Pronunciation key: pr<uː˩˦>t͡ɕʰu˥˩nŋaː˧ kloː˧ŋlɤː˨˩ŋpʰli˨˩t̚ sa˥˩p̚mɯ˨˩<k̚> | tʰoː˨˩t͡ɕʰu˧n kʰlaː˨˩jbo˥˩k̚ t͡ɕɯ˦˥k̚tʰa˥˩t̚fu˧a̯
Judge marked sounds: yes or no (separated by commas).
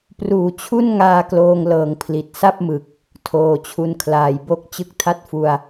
yes, yes